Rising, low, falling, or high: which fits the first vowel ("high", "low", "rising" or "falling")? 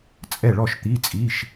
falling